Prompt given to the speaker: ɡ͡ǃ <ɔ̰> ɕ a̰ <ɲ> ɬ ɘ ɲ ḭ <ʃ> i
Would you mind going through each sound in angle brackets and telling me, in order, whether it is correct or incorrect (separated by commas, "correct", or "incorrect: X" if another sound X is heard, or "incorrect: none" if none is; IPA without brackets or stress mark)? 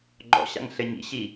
correct, incorrect: ŋ, incorrect: ɕ